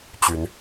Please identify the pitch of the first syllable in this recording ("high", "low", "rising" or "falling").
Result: rising